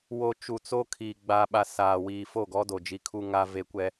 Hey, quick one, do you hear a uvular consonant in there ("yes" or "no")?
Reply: no